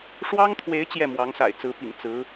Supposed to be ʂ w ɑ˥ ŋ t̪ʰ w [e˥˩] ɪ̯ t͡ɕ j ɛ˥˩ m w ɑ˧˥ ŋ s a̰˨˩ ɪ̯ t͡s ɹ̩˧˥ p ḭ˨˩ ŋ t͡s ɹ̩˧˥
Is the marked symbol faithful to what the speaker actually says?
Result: no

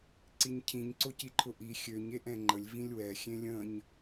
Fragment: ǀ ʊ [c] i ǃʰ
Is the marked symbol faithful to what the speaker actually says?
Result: yes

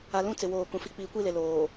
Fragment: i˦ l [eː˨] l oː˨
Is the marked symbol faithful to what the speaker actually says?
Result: no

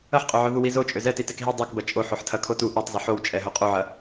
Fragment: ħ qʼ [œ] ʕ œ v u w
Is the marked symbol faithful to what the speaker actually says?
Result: no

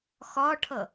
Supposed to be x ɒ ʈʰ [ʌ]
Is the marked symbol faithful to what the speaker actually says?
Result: yes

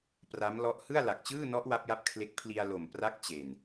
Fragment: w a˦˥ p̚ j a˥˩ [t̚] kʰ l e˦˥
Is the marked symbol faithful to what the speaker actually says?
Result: no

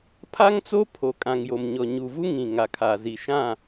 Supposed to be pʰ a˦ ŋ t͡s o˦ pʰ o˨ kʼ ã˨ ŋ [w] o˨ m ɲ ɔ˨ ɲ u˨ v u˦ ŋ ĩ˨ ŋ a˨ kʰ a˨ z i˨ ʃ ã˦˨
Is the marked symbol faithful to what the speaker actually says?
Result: no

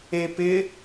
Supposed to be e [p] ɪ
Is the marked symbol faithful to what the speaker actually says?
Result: yes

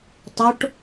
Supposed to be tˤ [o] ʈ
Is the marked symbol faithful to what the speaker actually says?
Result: yes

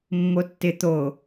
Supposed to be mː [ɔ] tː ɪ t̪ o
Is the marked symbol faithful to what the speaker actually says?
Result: no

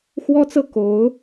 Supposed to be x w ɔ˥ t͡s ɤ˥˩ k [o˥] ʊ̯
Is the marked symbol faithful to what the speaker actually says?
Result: no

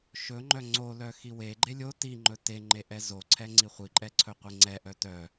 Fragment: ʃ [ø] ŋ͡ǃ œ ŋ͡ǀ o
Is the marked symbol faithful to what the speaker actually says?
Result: no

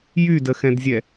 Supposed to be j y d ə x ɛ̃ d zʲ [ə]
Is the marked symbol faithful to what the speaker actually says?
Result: no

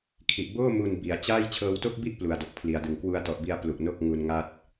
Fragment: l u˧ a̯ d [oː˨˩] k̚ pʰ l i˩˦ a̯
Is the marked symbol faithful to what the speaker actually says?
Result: no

